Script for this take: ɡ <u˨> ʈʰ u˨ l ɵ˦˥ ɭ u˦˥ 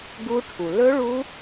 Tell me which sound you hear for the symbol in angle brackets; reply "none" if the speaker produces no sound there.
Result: u˦˥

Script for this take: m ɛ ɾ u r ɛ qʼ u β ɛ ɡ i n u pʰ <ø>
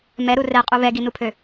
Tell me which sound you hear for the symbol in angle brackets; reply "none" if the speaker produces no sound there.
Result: ø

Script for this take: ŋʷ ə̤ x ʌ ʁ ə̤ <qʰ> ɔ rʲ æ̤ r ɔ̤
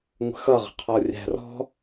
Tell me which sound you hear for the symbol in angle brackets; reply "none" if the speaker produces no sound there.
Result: qʰ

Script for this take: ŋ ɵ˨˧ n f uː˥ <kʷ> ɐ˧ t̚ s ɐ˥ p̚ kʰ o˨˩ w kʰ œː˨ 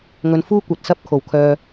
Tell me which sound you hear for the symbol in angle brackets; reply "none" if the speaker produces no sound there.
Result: kʷ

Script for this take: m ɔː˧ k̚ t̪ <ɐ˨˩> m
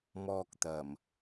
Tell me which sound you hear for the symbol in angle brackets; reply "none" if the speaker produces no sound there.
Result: ɐ˨˩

